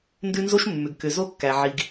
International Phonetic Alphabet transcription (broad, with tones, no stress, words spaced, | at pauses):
ndʉ˦nzo˦ʃmːʏ˨ɡ kʏ˨zo˦kːæ˨ ʕi˨ɡ